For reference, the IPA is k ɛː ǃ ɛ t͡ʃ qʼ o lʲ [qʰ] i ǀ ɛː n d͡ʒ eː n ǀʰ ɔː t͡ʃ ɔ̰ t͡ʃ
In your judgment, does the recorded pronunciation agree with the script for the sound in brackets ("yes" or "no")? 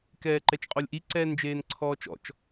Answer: no